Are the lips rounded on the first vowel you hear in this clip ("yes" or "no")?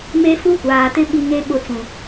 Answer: no